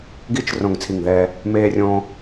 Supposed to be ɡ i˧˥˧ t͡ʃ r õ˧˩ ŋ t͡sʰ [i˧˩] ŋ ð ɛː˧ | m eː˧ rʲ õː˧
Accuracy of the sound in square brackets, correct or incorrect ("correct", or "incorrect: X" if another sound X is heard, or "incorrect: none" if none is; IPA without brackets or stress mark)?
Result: correct